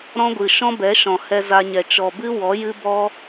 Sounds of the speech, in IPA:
ɾɔ̃˦ɡʷɨ˨ ʃɔ̃˦bɛ˨˦ʃɔ̃˨ hɛ˧za˧ɲɛ˨ t͡ʃɔ˨bɨ˦wɔ˨˦ jɨ˦bɔ˦

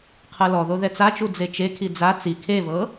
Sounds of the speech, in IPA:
qʰɤlɔðo ðɛt͡sat͡ʃu d͡zet͡ʃekʰi d͡za t͡si kʰevɤ

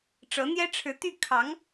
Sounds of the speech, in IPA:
ʈ͡ʂɤ˧˥n̪jɛ˥ʈ͡ʂʰɻ̩˧˥ t̪y˥˩kʰɑ˧˥ŋ

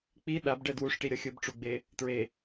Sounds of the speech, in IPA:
k͡pi ɗabɖɛ dwuʂʈi ɾʲʌxʲɯbʈ͡ʂuɡ͡be | tɹe

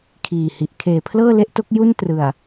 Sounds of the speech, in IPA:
kʰiː˨˩hi˨˩ʔ kʰeː˩˦pʰlɤː˥˩le˥˩ʔto˦˥k̚ ju˥˩ntrɯ˨˩a̯

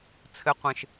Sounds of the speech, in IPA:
t͡sʰɘ˦ qʷẽ˦ʃ

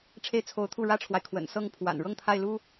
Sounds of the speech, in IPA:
ʈ͡ʂʰe˥˩ɪ̯t͡sʰo˧˥ʊ̯t̪ʰu˥˩ ɻä˥ʈ͡ʂʰwa˨ɪ̯ kʰwə̰˨˩nsɤ˥˩ŋ pʰwa̰˨˩nɻɤ˥˧ŋt̪ʰa˥˩ɪ̯lu˥

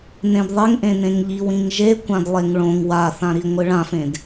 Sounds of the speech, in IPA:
nẽdðˤeŋʔẽnẽŋ ʎiwĩŋʒe kʷãdlˠeŋɭõŋ waθãɾi ŋʷɨɭãfẽd

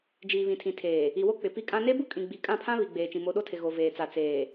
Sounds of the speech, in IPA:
d͡ʒiː˨βĩ˨tʰĩ˨tʰeː˨ | i˨wo˦ k͡pɪ˨ pi˦kʼã˦ ne˦bu˦kʼĩ˨ɡ͡bi˨ kʼã˦˨pʰã˦ βi˨ɡ͡beː˨t͡ʃĩ˨ mo˨˦ɗo˦tʰɪ˨ ɣo˨veː˨t͡sa˨ t͡seː˨

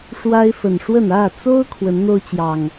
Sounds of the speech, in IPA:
ʂwa˦ɪ̯fə˨˩nʂwə˥˨n ä˥˨t͡so˦ʊ̯ kʰwə˨˦nn̪o˦ʊ̯t͡ɕjɑ˨˩ŋ

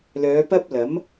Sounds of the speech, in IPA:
lœː˨˧pɐ˥p̚lɐ˨˥m

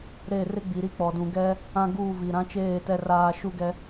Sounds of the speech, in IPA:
ɾe˦˨ rɪ˦ɡ͡bi˨ɾi˦k͡pɔ˨ dũ˨ɡɛ˦ | ã˦ɡuː˦˨vi˨ ɾã˦t͡ʃeː˦˨ tɛ˦raː˦ ʃu˦ɡɛ˦

